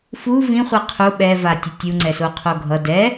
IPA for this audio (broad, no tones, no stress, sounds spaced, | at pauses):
f u v ĩ χʷ i qʰ u ɓ ɛ v a tʲ ɯ tʲ u ŋ͡ǀ ɛ s o qʰ o ɡʱ ʌ d ɛ